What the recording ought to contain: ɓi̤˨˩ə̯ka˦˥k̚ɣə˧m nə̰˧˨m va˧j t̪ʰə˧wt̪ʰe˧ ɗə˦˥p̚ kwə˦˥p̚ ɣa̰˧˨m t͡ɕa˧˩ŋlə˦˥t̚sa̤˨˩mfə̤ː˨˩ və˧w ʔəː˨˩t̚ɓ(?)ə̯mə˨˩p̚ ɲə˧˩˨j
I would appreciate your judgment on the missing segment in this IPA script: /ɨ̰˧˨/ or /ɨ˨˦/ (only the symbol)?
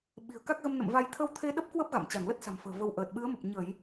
ɨ˨˦